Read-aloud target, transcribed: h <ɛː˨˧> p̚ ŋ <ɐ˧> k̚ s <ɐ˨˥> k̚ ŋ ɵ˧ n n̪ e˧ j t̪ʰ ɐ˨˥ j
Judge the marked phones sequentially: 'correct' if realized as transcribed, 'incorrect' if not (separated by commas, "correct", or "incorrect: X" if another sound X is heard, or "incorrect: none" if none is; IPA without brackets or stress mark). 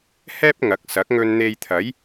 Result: incorrect: ɛː˥, incorrect: ɐ˨˥, correct